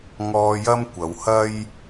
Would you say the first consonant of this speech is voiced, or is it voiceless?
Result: voiced